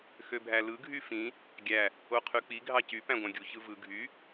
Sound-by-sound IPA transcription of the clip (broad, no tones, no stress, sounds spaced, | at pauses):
x ø bʱ æ l ɯ ɡʱ y f ĩ | ɡʲ æ | o qʰ y k͡p i ɡʱ ɑ c y p æ̃ ɡʷ æ̃ ɡʲ u ç ɯ v ɯ ɡʱ y